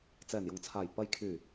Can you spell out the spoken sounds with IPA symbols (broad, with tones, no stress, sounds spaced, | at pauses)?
t͡s ɛː˨˩ n j ʊ˨˩ ŋ t͡sʰ aː˨˩ j p ɐ˨ j kʰ yː˨˩